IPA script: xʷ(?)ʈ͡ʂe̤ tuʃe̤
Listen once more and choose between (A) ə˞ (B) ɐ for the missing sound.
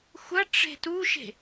B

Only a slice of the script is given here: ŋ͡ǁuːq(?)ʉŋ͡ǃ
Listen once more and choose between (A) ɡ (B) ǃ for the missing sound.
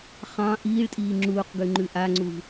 A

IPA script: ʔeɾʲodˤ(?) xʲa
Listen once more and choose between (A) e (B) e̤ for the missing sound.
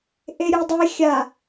A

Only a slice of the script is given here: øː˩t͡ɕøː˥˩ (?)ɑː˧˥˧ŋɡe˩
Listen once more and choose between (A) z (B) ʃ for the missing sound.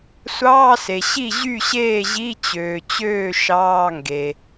B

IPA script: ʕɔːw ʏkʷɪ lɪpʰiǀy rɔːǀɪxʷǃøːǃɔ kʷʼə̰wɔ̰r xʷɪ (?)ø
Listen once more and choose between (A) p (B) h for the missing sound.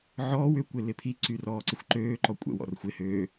B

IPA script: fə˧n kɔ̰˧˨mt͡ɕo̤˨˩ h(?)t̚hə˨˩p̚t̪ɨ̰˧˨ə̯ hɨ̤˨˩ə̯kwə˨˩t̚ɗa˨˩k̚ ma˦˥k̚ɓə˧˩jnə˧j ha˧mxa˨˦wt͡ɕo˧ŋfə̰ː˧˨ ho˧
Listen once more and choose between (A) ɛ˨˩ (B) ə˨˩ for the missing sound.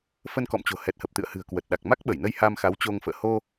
A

